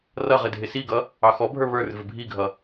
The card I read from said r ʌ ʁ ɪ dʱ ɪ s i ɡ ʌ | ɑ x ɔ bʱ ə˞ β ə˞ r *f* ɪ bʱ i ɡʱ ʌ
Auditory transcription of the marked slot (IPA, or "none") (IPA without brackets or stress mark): v